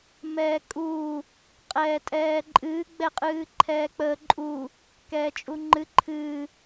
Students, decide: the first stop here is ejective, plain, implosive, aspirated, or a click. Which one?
ejective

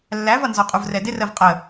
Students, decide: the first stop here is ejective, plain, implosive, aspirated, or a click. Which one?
ejective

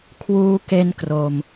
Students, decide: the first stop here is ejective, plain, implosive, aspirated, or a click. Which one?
aspirated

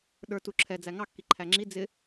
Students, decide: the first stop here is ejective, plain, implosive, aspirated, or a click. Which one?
implosive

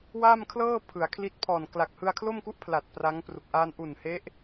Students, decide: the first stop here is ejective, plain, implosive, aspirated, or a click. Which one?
aspirated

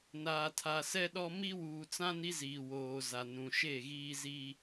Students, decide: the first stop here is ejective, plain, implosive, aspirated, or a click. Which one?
aspirated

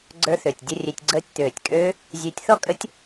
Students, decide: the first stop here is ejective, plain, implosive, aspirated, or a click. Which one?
click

